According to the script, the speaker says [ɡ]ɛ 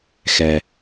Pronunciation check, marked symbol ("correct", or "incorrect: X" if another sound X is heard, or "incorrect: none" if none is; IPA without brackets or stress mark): incorrect: x